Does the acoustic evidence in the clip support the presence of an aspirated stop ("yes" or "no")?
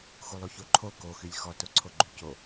yes